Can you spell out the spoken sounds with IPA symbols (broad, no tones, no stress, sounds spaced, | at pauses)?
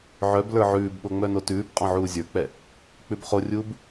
ʕ œ b l ə˞ ʕ ʉː b ɓ o ŋ͡m œ n o t ʉː b qʼ ɔ̃ ʕ uː zʲ ə˞ k͡p ɛ | k͡p ʉ b χ o rʲ uː b